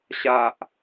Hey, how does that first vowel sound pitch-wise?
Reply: low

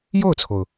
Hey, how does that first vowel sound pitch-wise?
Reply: falling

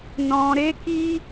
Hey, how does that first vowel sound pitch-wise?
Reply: low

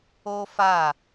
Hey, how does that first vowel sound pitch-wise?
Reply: high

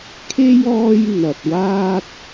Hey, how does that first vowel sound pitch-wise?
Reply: high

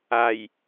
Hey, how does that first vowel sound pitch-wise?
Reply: low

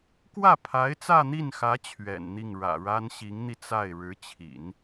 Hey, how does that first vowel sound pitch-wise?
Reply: falling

